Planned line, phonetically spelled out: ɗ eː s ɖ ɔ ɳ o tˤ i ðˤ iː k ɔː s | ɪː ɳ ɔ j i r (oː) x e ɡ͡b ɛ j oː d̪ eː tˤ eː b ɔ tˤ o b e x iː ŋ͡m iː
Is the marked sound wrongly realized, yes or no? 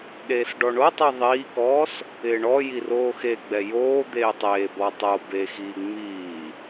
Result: no